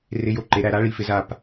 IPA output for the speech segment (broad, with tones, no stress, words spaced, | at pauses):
rɪ˧˥˧jo˦˨ ǃe˨˦ɾæ˦˨ ɾa˦˥ ɭi˨˦fɪ˨˦ za˦˨p